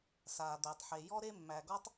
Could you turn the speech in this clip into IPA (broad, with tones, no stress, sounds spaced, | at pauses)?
s aː˩ d̪ æ˩ tˤ ħ e˩ j ɔ˥ ɾ e˥ mː æ˩ ɡ ɔ˥ tˤ